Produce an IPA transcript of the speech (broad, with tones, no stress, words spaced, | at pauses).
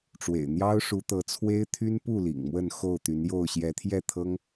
ʈ͡ʂwḛ˨˩ɪ̯ n̪jɑ˦ʊ̯ʂu˨˦t̪ɤ˨˦t͡sʰwe˦ɪ̯ t̪ʰy˦npu˥˨ lḭ˨˩ŋmwə˥˨n xo˥˨ʊ̯t̪y˨˦njo˥˨ʊ̯ ɕjɛ˨˦t̪ʰjɛ˥˨t̪ʰɤ˦ŋ